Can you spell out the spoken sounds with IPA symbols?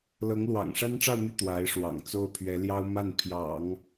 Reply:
l ɤ˧˥ ŋ l w ɑ̰˨˩ ŋ ʂ a˥ n ʈ͡ʂ ɑ˥˧ ʊ̯ n̪ y˥˩ t̪ w a˧˥ ɪ̯ ʂ w ɑ̰˨˩ ŋ t͡s o˥˩ ʊ̯ pʰ ɥ ɛ˧˥ l j ɑ˥ ʊ̯ m a˥˩ n pʰ j ɑ̰˨˩˦ ŋ

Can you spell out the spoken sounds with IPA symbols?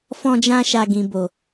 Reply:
f ɔ̃˧ d͡ʒ ã˧ ʃ a˨ ɡ ĩ˨ b o˨

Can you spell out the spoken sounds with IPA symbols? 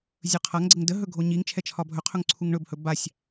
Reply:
zʲ ɵ qʰ a ŋ ɡ͡ǀ ə ŋ d ə ɦ ɵ ɡʱ o ɲ i ŋ t͡ʃʰ ɛ t͡ʃʰ ɒ bʱ ɵ qʰ ɵ ŋ ǀʰ u ŋ ɳ ɵ b h ɵ b a sʲ

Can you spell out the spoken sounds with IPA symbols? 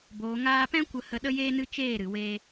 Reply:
b oː˨ ŋ aː˧ p ɛ̃˦ kʷ ə˧ h ə˧ ɗ ə˦ j eː˦ n ɨ˦ t͡ʃ eː˦˨ ɾ ɨ˨ w eː˧

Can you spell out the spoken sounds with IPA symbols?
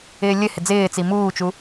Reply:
ɪː lʲ ɘ h ɪ d͡z ɪː t͡s i m uː t͡ʃ u

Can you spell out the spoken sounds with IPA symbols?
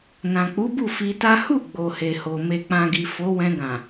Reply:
n ã˨ k͡p u˨˦ b u˦˨ f i˧ t a˦ h u˦˨ ɡ͡b o˨ h e˨ h o˨ m e˨ k͡p ã˨ ɡ i˨ f o˨˦ w ɛ̃˧ ɡ ã˨

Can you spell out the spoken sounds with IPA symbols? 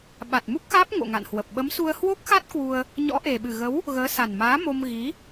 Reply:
ɓ a˨˩ t̚ m u˦˥ k̚ x aː˦˥ p̚ ŋ o̰˧˨ ŋ a̰˧˨ n h w ə˨˩ p̚ ɓ ə˨˦ m s u˧ ə̯ h w o˦˥ k̚ x a˦˥ t̚ k w u˧ ə̯ | ɲ ɔ̰˧˥ ʔ e˨˩ ɓ ɨ˨˩ ɣ ə˨˦ w | ɣ əː˨˦ s a˨˩ n m aː˨˦ m o˧ m ɣ i˨˦

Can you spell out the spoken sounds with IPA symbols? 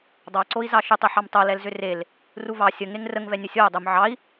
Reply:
dˤ ɑ ǀ o i̯ z ɑ ʃ ʏ tˤ ʏ ħ ɑ m tˤ o l ɛ l z ʏ r e l | r u v ɑ sʲ ə ŋ e ŋ r ə ŋ v ɛ nʲ ə sʲ o u̯ dˤ ʏ m ʕ ɑ i̯

